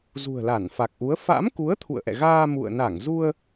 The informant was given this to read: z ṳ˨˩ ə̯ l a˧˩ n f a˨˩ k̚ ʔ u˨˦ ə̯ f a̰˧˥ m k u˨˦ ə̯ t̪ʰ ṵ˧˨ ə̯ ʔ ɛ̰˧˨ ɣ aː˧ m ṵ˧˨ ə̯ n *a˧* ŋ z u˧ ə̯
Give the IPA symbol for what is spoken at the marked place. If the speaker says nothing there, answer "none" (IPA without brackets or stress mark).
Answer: a˧˩